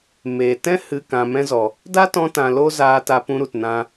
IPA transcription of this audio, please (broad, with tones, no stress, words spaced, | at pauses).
me˨ tɛ̃˦ hɨ˧ kã˨mɛ̃˧zɔ˨ | da˦tɔ̃˧tã˨ lo˦zaː˧ta˧ pũ˧ɾu˨t nã˧